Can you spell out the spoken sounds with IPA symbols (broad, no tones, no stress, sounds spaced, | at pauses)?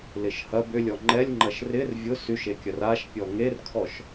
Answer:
l ɪ ʃ h ɐ b ʏ lʲ ɔ ŋ͡ǃ ɛ lʲ ŋ͡ǃ ɐ ʃ r ɪ r vʲ ʊ s y ʃ e kʲ ɐ r a ʃ pʲ ɔ ŋ e r kʰ ɔ ʃ